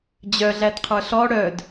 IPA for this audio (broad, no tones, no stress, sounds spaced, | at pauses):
d͡ʑ œ ɮ æ d qʰ ə˞ ɬ ɔ ɽ œ d